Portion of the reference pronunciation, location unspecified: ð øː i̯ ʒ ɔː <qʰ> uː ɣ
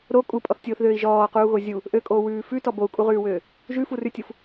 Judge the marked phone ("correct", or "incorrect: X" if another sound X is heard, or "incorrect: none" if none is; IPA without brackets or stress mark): incorrect: q